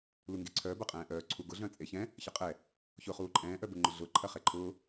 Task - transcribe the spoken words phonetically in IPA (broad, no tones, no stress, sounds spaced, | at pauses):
l u ŋ ɡ e ǀʰ œː b ɐ qʼ ɛ̃ː ʔ œː ǀʰ u ɡ ʊ ɮ œ̃ t͡sʼ e ç ɛ̃ | ç ɐ qʼ ɛ | ç ʊː χ uː ǃʼ ɛ̃ː ʔ œ b ʊ ŋ͡ǃ ʊ ɮ ʊː ǃʰ ɐ χ ɛ ǃʰ ʊː